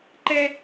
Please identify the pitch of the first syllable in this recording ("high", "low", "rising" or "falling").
high